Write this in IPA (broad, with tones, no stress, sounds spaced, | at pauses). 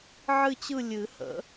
ʕ ɨ˦˨ t͡ɕ ɯ˦˨ lʲ ɨ˨˩˦ h ə̰˨˩˦